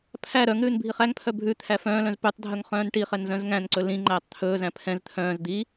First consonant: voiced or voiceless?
voiceless